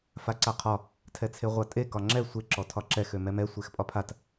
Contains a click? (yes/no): yes